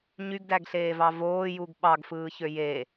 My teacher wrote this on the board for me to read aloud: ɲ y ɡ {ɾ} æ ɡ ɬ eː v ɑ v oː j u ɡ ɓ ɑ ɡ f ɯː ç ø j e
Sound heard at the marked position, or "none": d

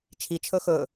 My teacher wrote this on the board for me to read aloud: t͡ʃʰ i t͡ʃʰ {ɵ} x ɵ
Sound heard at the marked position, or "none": ɵ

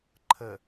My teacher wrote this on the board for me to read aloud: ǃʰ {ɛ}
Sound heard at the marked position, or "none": ə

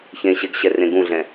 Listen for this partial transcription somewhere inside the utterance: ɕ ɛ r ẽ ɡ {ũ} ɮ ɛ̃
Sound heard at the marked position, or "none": ũ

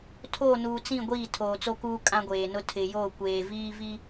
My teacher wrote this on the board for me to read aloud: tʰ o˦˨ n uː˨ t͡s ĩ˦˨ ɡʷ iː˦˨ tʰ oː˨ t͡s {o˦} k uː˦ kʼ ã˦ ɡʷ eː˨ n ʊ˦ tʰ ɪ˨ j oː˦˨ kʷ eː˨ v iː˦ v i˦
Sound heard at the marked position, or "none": o˦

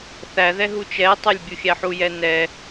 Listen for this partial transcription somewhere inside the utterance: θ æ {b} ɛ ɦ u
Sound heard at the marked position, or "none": ð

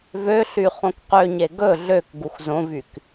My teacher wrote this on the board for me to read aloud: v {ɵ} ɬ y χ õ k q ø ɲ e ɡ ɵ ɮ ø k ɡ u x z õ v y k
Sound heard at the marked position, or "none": ø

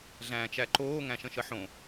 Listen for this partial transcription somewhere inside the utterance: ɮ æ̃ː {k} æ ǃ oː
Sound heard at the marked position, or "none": t͡ʃ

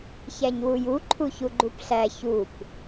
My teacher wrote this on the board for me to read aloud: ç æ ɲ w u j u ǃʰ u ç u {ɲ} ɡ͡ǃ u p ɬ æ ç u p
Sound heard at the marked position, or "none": none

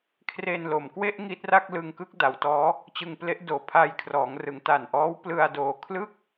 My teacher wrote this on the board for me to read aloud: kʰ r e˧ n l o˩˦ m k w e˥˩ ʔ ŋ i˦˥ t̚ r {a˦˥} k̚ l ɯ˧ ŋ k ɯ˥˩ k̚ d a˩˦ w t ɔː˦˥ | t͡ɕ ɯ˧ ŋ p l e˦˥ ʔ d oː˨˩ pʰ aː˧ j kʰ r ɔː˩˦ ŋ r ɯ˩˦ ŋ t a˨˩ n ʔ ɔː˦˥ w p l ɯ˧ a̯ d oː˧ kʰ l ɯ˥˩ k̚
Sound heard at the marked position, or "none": a˥˩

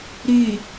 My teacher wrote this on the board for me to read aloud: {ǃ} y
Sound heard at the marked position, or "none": ɾ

